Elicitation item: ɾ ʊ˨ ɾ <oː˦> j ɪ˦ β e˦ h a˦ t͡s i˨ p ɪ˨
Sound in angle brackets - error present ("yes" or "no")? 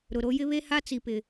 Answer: yes